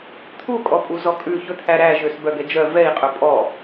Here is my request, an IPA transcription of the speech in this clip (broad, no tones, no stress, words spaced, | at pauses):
t̪ʰu kʼɔpʼuzɔkʼʉ çɵt̪ʰæɾæ ʒøsbœɡɛd͡ʒœ vɛi̯ qʼɵpʼɔ